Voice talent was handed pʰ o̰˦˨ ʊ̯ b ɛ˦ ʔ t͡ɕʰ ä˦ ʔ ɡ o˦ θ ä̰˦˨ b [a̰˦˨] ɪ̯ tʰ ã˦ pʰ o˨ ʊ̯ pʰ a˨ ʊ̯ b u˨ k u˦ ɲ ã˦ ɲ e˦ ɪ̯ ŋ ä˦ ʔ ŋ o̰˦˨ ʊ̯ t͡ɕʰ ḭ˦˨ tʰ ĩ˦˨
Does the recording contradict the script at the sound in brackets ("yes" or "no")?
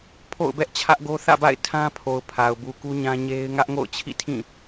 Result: no